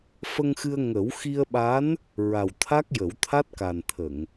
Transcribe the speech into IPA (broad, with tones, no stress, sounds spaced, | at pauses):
f ə˧ ŋ x ɨ˧ ə̯ ŋ ə˨˩˦ w x i˧ ə̯ ɓ a˧˥ n | ɹ a˨˩ w t̪ʰ a˦˥ k̚ j ə˨˩˦ w t̪ʰ a˦˥ t̚ k a˨˩ n t̪ʰ ə˨˩˨ ŋ